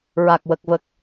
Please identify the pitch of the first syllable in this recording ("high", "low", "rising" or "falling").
low